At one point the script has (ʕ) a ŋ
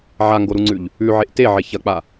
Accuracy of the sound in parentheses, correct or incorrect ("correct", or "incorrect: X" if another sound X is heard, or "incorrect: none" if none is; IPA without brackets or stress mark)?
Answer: correct